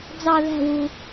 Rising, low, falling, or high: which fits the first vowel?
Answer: falling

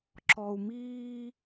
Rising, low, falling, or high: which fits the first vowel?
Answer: low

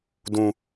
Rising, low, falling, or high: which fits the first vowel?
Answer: high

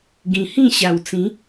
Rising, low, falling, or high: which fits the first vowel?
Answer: low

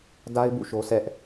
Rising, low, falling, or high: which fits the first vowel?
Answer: high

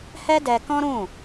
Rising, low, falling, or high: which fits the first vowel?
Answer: high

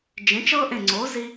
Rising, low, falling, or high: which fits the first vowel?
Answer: rising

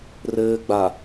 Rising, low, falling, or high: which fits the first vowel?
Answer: low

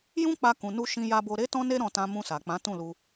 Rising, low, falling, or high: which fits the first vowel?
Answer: high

